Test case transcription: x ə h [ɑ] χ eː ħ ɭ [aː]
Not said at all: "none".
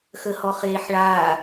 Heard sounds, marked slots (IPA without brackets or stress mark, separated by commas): ɔ, aː